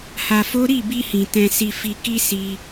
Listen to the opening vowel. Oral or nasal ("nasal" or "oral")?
oral